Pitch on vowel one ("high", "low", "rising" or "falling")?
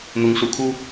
rising